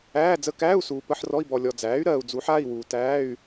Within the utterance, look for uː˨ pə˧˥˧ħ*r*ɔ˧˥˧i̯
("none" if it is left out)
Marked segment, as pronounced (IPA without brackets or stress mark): r